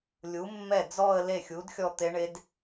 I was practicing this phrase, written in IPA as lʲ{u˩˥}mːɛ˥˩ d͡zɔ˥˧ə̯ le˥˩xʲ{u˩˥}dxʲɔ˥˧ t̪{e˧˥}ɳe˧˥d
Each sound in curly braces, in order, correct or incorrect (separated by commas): correct, correct, correct